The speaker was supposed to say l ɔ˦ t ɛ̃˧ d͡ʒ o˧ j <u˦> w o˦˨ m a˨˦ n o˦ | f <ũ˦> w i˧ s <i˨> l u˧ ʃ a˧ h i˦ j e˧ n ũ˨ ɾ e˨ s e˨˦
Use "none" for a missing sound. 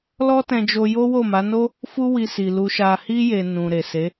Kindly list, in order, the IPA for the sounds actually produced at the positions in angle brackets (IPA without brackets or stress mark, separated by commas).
o˦, u˦, i˨